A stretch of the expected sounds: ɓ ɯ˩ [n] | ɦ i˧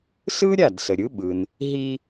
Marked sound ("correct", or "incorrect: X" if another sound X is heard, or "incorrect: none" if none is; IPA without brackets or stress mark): correct